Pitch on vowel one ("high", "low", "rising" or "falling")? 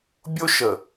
high